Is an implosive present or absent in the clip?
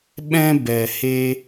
present